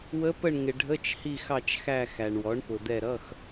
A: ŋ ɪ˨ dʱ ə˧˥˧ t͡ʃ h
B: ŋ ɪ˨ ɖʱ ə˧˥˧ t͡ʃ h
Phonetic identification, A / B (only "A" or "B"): B